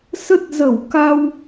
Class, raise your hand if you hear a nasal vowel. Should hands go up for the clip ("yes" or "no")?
no